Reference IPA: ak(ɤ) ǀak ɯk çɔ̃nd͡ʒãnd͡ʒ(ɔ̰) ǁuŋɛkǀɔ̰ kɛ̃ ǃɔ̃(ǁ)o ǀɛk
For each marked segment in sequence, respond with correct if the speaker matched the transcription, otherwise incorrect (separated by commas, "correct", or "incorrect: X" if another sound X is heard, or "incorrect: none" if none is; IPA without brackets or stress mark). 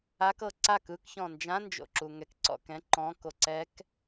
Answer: correct, incorrect: o̰, incorrect: k